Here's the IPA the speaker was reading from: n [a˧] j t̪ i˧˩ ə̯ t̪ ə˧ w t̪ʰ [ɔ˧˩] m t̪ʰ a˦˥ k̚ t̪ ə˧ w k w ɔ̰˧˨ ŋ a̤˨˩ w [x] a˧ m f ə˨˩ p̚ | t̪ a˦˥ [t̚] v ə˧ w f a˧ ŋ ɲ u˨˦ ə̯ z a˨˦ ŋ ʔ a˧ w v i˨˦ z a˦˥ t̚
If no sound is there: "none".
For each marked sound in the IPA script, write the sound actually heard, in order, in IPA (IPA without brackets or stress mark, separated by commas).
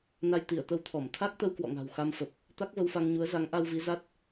a˧, ɔ˧˩, x, k̚